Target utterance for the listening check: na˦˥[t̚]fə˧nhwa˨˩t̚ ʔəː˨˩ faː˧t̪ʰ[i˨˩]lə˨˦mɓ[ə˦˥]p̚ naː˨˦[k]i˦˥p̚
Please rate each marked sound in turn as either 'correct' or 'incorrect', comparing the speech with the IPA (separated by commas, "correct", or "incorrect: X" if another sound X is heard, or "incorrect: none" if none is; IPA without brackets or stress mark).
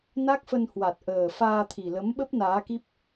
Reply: incorrect: k̚, correct, correct, correct